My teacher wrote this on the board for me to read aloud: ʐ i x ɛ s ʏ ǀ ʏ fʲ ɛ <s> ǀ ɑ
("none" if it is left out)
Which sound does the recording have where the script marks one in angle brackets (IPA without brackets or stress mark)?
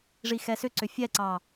none